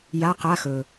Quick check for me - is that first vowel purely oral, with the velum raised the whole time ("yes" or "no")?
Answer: yes